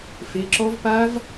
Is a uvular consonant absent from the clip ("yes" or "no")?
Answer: yes